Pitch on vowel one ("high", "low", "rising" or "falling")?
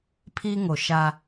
high